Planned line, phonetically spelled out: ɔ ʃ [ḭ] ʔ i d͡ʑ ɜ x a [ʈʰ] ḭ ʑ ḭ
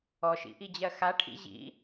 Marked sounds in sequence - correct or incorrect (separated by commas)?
correct, correct